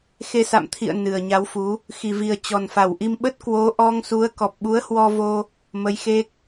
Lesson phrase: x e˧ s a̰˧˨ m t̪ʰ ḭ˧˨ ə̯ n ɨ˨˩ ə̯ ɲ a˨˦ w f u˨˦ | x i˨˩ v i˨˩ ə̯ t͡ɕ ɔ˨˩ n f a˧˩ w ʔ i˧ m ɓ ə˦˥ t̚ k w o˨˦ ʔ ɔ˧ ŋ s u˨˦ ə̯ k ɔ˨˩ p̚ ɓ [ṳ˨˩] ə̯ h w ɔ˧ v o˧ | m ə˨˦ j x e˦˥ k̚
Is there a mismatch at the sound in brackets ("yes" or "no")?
yes